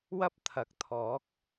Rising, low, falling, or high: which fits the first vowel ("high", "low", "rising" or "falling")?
high